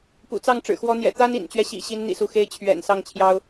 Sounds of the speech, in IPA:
p ṵ˨˩ t͡s ɑ˥˩ ŋ ʈ͡ʂ ɻ̩˨˩ x w ɔ˧˥ n̪ j ɛ̰˨˩ t̪ a˥ n ḭ˨˩ n t͡ɕ ɥ ɛ˦ ɕ ḭ˨˩ ɕ i˧˥ n n̪ ḭ˨˩ s u˧˥ x e˥ ɪ̯ t͡ɕʰ ɥ ɛ̰˨˩ n s ɑ˥˩ ŋ t͡ɕʰ j ɑ˥ ʊ̯

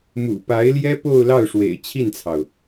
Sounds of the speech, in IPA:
m ṵ˨˩ p a˧˥ ɪ̯ l j ɛ˥ p o˥˧ ʊ̯ l ɑ˥˩ ʊ̯ ʂ w ḛ˨˩ ɪ̯ t͡ɕʰ i˥˩ n t͡sʰ ɑ˩ ʊ̯

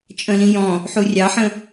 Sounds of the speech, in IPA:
t͡ʃʼ ə̃ l ĩ j ɔ̃ | ħ u rʲ ɑ ħ ə̃

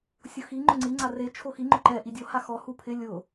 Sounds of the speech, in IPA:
sʲ ʊ x i ŋ͡ǃ ʊ ŋ͡ǀ i ŋ͡ǀ a r e t͡ʃʰ o x i ŋ͡ǃ ʊ ǃ ɛ ʔ i dʲ o h a x ɔ h u pʰ ɪ lʲ ʊ

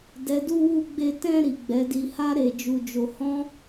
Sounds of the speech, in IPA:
d ɛ˨ d u˧ w u˧ ɡ͡b e˧ t ɛ̃˧ ɾ i˨ ɡ͡b ɛ˨˦ d i˧ h a˦ ɾ e˧ d͡ʒ u˧ d͡ʒ o˧ h ɔ̃˦

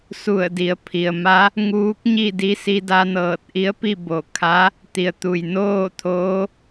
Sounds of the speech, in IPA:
s u˧˩ ə̯ d i˩˧ ə̯ pʰ i˩ ə̯ m a˧˥ | ŋ uː˧˥ k̚ ɲ i˥˨ d i˧˥ s i˧ d a˧ n ɤː˧˩ t̚ ʔ i˧˥ ə̯ p i˥˨ b o˧˩ kʰ a˧˥ | t̪ i˩ ə̯ t̪ u˩ j n oː˥˨ t̪ʰ oː˧˥

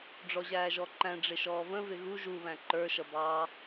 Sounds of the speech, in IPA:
ɖ͡ʐ ɔ ʑ æː ʒ ɔ ǃ æ̃ ɖ͡ʐ ɪ ʃ ɔː v ə̃ v ɪ ɣ u ʒ u β æ̃ ǃ ə˞ ʃ ʌ b ɑ

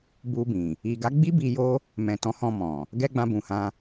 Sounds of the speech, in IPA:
b u˧ b ĩ˨ | i˨ ɡ a˨˦ ɡ͡b i˦ b i˧ j o˦ | m ɛ̃˨ t ɔ̃˨˦ h ɔ̃˧ m ɔ̃˨ | ɡ ɛ˧ ɡ͡b ã˧ b ũ˨ h ã˧

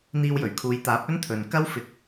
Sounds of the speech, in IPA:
n̪ iː˧ w j ɵ˨˩ ɥ kʰ uː˨˧ j t̪ aː˨˥ p̚ ɵ˥ n t̪ʰ ɵ˨ n k ɐ˥ w f ɪ˨˥ k̚

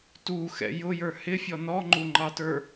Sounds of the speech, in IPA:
t u x ɛ̰ j ʊ j ə˞ h ɪ fʲ ɔ n ɔ ŋ͡ǃ u ŋ͡ǃ ɑ t ə˞

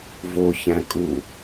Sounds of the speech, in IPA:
v o ç æ̃ kʼ u

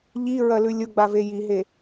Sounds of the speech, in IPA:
ʎ i ɹ ɐ l ʉ lʲ ʊ ɡ͡b a v e j i ɦ e

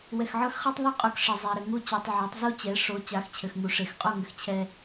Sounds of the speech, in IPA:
w ɛ˨ x ʕ ɤ˦ x χ ɛ˦ tˤ ðˤ i˦˨ qʼ u˨ k ʂ e˨ zˤ ɛ˨ ɾ ɘ˨ ŋ u˦˨ t͡ɕ i˨ tˤ ʕ ɛ˨˦ tˤ z u˦ t͡ɕ ɛ˨˦ ʂ o˨˦ t͡ɕ a˨˦ x t͡ɕʰ ɘ˨ x ŋ u˨ ʂ e˨ x qʼ o˦˨ ŋ ɘ˨ x t͡ɕʰ ɛ˦

